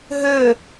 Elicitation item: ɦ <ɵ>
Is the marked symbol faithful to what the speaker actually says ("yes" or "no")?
yes